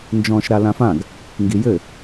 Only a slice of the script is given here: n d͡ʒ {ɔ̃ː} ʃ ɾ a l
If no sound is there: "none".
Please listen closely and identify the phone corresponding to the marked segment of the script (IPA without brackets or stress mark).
ɔ̃ː